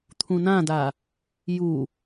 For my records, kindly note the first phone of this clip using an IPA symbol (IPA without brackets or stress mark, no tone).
t̪ʰ